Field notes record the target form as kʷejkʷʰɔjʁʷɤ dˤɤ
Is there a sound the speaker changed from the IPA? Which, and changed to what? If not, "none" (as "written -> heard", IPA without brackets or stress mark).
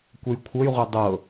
ɔ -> ɤ